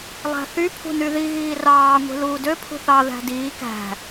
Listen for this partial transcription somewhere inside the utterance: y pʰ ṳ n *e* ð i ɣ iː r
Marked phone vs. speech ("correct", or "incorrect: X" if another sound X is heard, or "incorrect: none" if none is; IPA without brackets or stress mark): incorrect: y